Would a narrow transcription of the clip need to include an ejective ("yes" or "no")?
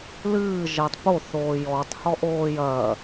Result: no